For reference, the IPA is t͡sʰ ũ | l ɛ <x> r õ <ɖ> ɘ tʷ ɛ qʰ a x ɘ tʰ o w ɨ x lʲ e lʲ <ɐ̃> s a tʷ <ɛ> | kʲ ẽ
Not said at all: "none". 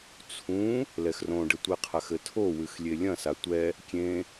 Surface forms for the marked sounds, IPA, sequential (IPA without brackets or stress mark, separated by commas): x, ɖ, ɐ̃, ɛ